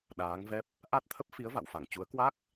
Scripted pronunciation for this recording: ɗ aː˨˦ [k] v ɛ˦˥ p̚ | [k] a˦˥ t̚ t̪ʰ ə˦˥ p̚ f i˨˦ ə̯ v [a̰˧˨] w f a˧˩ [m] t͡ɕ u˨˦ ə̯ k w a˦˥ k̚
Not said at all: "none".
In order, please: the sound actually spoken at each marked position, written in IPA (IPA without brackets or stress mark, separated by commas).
ŋ, ʔ, a̰˧˨, ŋ